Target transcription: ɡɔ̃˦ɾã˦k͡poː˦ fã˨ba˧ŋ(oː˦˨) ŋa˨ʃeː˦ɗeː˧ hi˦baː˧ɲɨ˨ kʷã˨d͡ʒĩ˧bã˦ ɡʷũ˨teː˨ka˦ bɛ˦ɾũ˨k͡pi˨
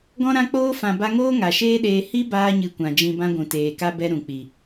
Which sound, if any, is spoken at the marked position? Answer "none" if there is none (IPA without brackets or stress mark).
oː˦